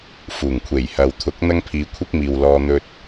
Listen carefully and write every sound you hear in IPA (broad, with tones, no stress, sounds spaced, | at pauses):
f uː˨˩ ŋ kʷʰ e˨˩ j h ɐ˨ w t̪ʰ ʊ˨˥ k̚ n̪ ɐ˥ ŋ pʰ iː˨˧ kʷʰ ɪ˥ k̚ m iː˨ w l ɔː˧ n̪ ɵ˧ t̚